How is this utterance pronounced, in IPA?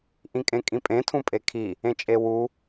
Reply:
ʔ ĩ kʼ ẽ kʼ ĩ pʼ ẽ tʰ ũ pʼ e kʰ i | ẽ t͡ʃʼ e w u

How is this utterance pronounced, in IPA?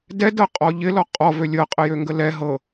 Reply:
d ɛ d ɤ qʼ ɔ ʎ ɪ l ɔ qʼ ɔ v ø lʲ ɤ qʼ ə j ø ŋ ɡ ə l ɛ ɦ ɤ

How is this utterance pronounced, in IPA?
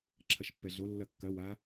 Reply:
ǁʰ ɐ ʃ pː ɛ ɮ o lː ɐ kː ɐ w a

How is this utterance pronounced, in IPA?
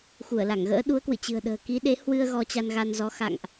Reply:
x u˧˩ ə̯ l a˧˩ ŋ ɣ ə̰ː˧˥ ɗ u˨˦ ə̯ k w ɨ̰˧˨ t͡ɕ ɨ̤˨˩ ə̯ ɗ ə̤ː˨˩ k i˨˦ ɗ e˨˦ h w ɨ˧ ə̯ ɣ ɔ˧ t͡ɕ a˧ n ɣ a˧ n z ɔ˨˦ x a̰˧˨ ŋ ʔ

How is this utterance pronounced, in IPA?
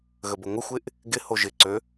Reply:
ɣ ə b ə ŋʷ ɪ xʷ ɪ ʔ | ɡ ɪ h o ʒ ɪ ǀ ø

